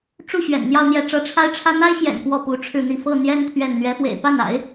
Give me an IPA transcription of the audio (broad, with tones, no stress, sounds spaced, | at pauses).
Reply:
ʈ͡ʂ u˥˩ ɕ ɥ ɛ̰˨˩ n n̪ j ɑ˥˧ ʊ̯ n̪ j ɛ˥˩ ʈ͡ʂ ɤ˥ ʈ͡ʂʰ a˥ ɪ̯ ʈ͡ʂʰ ä˥ n̪ a˥ ɪ̯ ɕ j ɛ̰˨˩ n p w ɔ˥˩ p u˧˥ ʈ͡ʂʰ ɻ̩˥˧ n̪ i˥˧ f ɤ˥˩ n̪ j ɛ˥ n t̪ʰ ɥ ɛ˥˩ n n̪ ɥ ɛ˧˥ f w ḛ˨˩ ɪ̯ p a˥˩ n a̰˨˩˦ ɪ̯